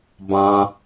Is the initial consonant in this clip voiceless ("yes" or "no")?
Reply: no